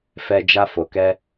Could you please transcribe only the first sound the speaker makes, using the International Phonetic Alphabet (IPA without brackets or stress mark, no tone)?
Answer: f